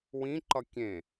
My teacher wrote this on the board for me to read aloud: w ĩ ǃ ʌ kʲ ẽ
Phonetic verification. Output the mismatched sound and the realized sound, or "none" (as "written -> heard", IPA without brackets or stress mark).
none